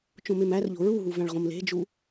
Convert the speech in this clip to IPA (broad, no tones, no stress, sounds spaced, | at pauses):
t͡ʃ õ m e m æ r ʎ o̤ ɹ u ɦ u v æ̃ ɭ ʁ õ m l e̤ d͡ʒ u